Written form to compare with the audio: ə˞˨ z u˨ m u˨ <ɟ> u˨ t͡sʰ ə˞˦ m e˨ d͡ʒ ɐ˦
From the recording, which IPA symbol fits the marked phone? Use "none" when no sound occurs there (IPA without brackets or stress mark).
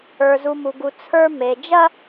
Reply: ɡ